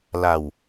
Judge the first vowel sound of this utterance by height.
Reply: low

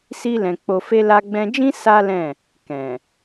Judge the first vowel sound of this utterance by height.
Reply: high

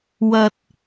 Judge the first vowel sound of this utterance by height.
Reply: low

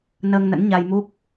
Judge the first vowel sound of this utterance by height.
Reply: mid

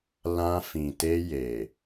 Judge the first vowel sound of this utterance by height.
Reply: low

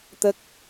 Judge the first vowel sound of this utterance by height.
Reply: mid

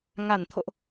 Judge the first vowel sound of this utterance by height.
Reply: low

